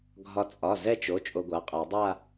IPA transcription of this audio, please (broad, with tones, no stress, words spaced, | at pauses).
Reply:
ɡʱɒ˧ t͡sʼɒ˩˧˩ zɛ˥˧t͡ʃo˩˧˩ t͡ʃʼo˧ɡʷa˩˧˩qʼa˨˩˦ dˤa˥˧